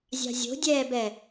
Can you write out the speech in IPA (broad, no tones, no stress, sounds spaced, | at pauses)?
zʲ ɑ̤ zʲ o̤ dʲ ɛː b ɛ